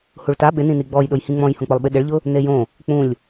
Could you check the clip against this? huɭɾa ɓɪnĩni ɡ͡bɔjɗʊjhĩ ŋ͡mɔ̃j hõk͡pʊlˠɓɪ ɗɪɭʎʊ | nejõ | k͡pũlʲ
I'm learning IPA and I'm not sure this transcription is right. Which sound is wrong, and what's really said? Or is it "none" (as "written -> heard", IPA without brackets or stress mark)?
ɾ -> t